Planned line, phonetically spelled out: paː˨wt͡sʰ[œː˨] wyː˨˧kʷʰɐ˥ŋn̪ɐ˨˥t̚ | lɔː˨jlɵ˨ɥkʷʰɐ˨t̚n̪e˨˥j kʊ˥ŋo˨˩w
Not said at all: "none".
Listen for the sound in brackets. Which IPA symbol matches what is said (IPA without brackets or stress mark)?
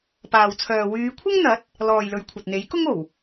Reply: œː˨